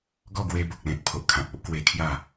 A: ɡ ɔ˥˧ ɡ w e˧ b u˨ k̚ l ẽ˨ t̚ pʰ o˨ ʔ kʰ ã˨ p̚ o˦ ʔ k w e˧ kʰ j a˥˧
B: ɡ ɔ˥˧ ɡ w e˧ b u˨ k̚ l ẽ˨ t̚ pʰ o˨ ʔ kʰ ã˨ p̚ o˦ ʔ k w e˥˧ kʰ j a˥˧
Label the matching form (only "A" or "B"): A